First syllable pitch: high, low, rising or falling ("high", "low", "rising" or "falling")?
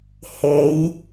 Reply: rising